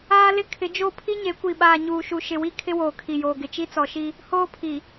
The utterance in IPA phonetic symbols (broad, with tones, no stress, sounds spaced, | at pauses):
aː˦ l ɪ˦ kʰ ɪ˨˦ d͡ʒ o˦˨ pʰ i˦ ɲ e˨˦ kʷ i˨ ɓ aː˨ ɲ uː˨ ʃ u˨ ʃ ɪ˨ w i˦ kʰ ɪ˦ w oː˨ kʰ i˨ j oː˨ ɡ ɪ˨ t͡ʃ i˦ t͡s ɔ˨ ʃ i˦ | h oː˦ pʰ i˨